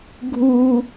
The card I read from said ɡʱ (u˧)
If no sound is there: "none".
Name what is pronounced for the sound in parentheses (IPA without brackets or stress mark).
u˧